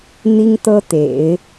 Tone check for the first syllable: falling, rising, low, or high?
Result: high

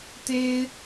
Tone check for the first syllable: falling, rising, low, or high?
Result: high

